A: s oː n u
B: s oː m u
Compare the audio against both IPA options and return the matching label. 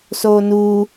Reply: A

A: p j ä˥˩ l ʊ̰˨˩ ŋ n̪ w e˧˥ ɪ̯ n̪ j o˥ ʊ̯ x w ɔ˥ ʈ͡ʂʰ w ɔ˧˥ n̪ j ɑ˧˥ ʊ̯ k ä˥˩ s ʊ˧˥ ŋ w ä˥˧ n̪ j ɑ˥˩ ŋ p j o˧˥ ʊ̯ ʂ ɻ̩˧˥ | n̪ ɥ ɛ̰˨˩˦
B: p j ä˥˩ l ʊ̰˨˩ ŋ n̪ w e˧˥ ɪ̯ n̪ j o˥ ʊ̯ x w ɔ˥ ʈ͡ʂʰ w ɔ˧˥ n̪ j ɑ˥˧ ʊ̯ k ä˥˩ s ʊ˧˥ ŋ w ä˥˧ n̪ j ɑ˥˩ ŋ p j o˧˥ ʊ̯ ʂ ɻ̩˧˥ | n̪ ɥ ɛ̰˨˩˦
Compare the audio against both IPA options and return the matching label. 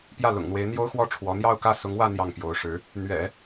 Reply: B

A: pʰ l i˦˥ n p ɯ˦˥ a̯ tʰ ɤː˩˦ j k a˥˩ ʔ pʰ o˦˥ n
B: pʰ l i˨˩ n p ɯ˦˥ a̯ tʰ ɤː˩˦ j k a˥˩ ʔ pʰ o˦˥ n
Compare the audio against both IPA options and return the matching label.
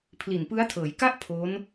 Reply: B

